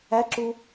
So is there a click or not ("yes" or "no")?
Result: yes